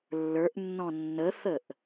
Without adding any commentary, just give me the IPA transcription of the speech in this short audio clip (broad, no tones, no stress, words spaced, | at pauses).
lːə˞ʔnːɔ̃ nːəθəʔ